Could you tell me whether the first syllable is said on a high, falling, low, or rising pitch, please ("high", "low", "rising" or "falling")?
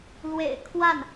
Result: low